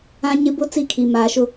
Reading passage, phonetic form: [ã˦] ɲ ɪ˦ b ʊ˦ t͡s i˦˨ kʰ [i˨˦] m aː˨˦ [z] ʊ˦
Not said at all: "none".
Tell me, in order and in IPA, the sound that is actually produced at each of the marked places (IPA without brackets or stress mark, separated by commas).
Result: ã˦, i˨, ʃ